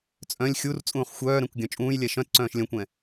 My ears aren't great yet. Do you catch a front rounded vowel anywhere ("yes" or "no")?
yes